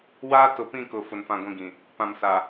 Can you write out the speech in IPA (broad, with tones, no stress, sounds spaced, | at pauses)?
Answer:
w aː˦ t ʊ˨ p ĩ˦˨ k ʊ˨ f ʊ˨ n f ã˦˨ ɡʷ ĩ˦ ɡ ĩ˨ | p ã˨ m s a˨